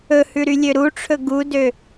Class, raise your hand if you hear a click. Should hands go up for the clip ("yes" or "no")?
no